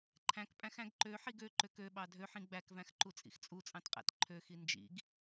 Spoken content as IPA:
ǃʰ æ̃ k pʼ æ̃ x æ̃ ɡ ǃ ø ħ i ɡ ø ǃ ø k ø ɓ ɑ dʱ ø ħ ĩ ɡ͡b æ k v æ̃ x ǃ u t͡sʼ ḭ x t͡sʼ u t͡sʼ ɑ̃ t qʼ æ̰ t ǃʰ ø x i n d͡ʒ ḭ ɡ

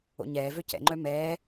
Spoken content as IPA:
o̰ ɲ ɛː v ø c ɛ̰ ŋ͡ǃ œ m ɛː

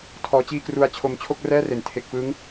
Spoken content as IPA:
tʰ ɔː˦˥ t͡ɕ iː˥˩ k r u˦˥ a̯ t͡ɕʰ o˧ m t͡ɕʰ o˥˩ k̚ r ɛː˥˩ r e˩˦ n tʰ e˨˩ k̚ f ɯ˦˥ ŋ

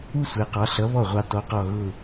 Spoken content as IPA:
u˥˧ sʷ ɛ˩˧ q ɑ˩˧ ɬ ʌ˨˥ β ɔ˥˩ ʁʷ ɑ˧ t ɔ˨˥ q ɔ˧˩ ɣ ʊ˧˩

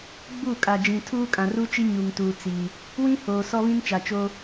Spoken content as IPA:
ɡ͡b u˦˨ kʼ a˨ d͡ʒ ĩ˨ tʰ uː˦ kʼ ã˨ r u˦ t͡ʃ i˦ ɲ u˨ ŋ t uː˨ t͡s i˨ | w ĩ˦ h oː˨ s ɔ˦ β ĩ˦ n t͡ʃ a˨ t͡ʃ o˦

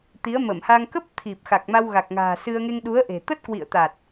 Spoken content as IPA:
t̪ i˨˦ ə̯ m ə˧˩ m h a˧ ŋ k ə˦˥ p̚ t̪ʰ i˨˩ p̚ x a˨˩ k̚ m a˧ w ɣ a˨˩ k̚ ŋ a̤ː˨˩ s ɨ˧ ə̯ ŋ e˧ ŋ ɗ u˨˦ ə̯ ʔ e̤˨˩ t̪ ə˦˥ t̚ k w ḭ˧˨ ə̯ t̪ a˨˩ t̚

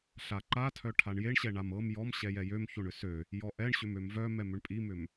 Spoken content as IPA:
ɬ a ǃ a tʰ œ ʈʰ a ɳ j e ɳ ɕ ɛ ɳ a m ɤ m j ɔ m ɕ ɛ j ɛ j ø m ç o ɳ ʏ s ø | j ɔ ʔ ɛ ɳ ɕ ʏ m ø m v œ m ɛ m ʏ ɳ pʼ i m ʏ m

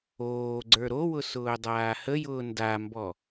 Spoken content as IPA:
oː ɡ͡ǀ ə˞ ɾ o w ʊ s ʊː dˤ aː h ə j ʊː n d a m b ɔ

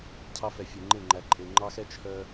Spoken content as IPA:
cʰ ɑ˦ f ɛ˨ fʲ e˨ ŋ͡ǃ e˦˨ ŋ͡ǃ æ˨ ǃʼ e˨ ŋ͡ǃ ɑ˦ x ɛ˦ t͡ʃʰ œ˦

